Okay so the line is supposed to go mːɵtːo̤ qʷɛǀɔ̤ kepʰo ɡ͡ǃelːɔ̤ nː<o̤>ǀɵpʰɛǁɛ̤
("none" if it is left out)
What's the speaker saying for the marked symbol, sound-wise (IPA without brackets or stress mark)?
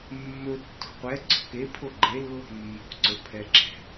o̤